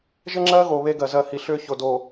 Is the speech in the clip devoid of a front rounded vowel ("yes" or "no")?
no